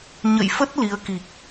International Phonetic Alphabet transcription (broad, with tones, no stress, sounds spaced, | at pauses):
ɲ ə̰˧˨ j f ə˦˥ t̚ l i˨˦ ə̯ k i˨˩ k̚